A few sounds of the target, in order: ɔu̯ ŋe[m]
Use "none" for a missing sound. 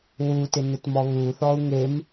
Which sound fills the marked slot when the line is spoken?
m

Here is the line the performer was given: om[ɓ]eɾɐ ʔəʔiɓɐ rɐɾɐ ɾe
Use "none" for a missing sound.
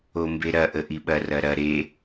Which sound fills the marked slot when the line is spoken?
b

